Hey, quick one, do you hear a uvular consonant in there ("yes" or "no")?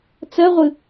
yes